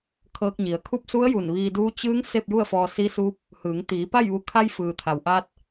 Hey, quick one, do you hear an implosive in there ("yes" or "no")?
no